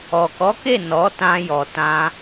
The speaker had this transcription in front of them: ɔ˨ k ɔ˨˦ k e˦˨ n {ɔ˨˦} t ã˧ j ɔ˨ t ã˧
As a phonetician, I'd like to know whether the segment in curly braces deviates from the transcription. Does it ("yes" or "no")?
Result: no